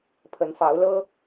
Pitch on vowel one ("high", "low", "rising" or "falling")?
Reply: rising